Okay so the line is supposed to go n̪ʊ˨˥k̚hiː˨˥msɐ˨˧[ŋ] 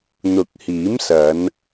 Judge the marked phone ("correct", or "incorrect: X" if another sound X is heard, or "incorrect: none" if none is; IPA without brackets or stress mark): incorrect: n